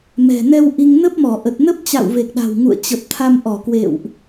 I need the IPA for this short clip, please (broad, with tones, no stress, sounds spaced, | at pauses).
m ɛ̤˨˩ n ɛ˧ w ʔ i˧ ŋ n ə˦˥ p̚ m ɔ˧˩ ʔ ə˨˩ t̚ n ə˦˥ p̚ t͡ɕ a̰˧˨ w v e˨˩ k̚ ɗ a̤˨˩ w ŋ ṵ˧˨ ə̯ t͡ɕ ə˨˩ p̚ t̪ʰ a˧ m ʔ ɔ˧˩ k w ḛ˧˨ w ʔ